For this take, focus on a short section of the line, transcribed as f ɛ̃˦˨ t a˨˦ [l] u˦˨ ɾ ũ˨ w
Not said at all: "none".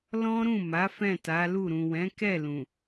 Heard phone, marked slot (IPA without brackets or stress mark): l